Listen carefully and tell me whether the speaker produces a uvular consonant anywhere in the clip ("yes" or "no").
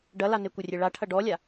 no